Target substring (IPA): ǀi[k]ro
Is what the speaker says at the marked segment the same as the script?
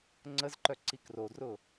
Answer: yes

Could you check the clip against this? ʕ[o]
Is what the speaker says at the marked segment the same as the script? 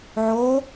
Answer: yes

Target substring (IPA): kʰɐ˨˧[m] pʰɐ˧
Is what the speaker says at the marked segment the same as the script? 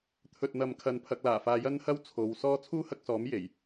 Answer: no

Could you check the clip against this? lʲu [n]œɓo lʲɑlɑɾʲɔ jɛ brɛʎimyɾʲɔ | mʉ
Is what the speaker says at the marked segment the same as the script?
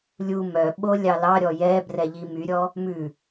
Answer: no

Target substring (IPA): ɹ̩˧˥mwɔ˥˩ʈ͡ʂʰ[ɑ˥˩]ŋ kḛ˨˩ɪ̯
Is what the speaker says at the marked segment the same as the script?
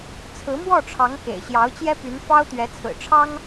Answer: no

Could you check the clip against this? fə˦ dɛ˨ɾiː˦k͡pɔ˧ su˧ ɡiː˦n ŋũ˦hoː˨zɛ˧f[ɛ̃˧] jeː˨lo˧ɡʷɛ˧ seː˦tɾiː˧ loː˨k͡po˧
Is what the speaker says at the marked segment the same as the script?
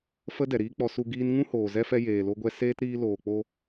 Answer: no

